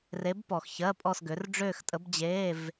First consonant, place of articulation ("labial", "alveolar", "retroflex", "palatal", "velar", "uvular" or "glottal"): alveolar